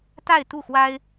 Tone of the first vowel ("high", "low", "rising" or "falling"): falling